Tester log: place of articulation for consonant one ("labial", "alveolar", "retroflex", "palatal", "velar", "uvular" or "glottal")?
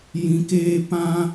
palatal